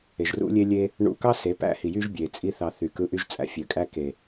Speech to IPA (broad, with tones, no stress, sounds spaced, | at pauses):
e˨ ʒ r ṵ˦ lʲ e˦ lʲ e˦ | ɳ ṵ˧ k ɑ˦ s e˨˦ p æ̰˦ h i˨ j y˦ ʒ bʲ e˨ t͡sʼ i˦ θ ɑ˧ θ y˨ k ɯ˧ ʔ y˦ ʒ t͡sʼ æ̰˦ fʲ ø˨ kʼ æ˦ k e˨